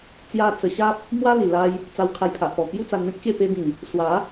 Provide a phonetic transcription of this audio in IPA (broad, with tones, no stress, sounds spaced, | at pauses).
t͡s j a˧ t͡s ə˧ ɕ a˦ p̚ | m w a˦ l i˨˩ l a˧ j | t͡s a˧ w kʰ a˧ j pʰ a˨ ʔ p ɔ˨˩ k j u˦ t͡s a˧ n m ẽ˦ k̚ ɕ e˥˧ p e˧ b ĩ˨˩ | s w a˨˦